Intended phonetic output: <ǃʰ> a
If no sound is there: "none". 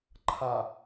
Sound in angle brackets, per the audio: ǃʰ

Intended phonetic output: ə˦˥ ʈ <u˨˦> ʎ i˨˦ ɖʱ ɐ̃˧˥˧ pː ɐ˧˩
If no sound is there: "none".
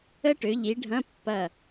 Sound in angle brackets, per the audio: ø˨˦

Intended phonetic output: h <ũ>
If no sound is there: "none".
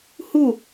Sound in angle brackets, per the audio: u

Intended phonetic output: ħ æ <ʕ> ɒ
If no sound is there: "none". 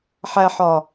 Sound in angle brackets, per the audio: ħ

